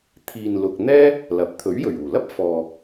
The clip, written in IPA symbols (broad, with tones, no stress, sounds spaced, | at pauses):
t̪ʰ iː˨ n l ʊ˨ k̚ n̪ ɛː˥ | l ɐ˨˥ p̚ t̪ʰ ɵ˨˥ ɥ j ɵ˨˩ ɥ uː˨˩ l ɐ˥ p̚ f ɔː˨